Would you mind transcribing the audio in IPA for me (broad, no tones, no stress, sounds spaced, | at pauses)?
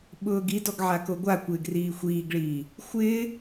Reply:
ɓ ʊː ɡ i d ɔ ɡ ʕ a k o ɡʷ a kʷ ɪː ɡ r iː xʷ iː ɡ ɭ iː | xʷ ɪː